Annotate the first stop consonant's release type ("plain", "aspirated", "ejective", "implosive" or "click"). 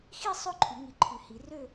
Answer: click